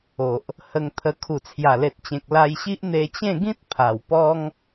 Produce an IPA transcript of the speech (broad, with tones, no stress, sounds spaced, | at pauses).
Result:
o˨ ʔ | h ə˧ ŋ t̪ʰ ə˧ kʰ u˨˩ t͡sʰ j a˨˩ l e˨ t̚ t͡ɕ ẽ˨ k̚ l a˧ j ɕ i˦ ʔ n̪ e˧ t͡ɕ ẽ˥˧ ɡ ĩ˦ t̚ pʰ a˨˩ w p ɔ˦ ŋ